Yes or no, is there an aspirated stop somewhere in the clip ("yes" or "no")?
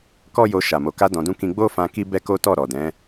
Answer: no